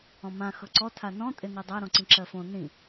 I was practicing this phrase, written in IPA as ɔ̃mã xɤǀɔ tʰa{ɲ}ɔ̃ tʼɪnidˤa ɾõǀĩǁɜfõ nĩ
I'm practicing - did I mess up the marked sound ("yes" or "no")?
yes